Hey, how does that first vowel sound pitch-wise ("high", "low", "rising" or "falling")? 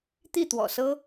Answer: falling